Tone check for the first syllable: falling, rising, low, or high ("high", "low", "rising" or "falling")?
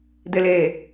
low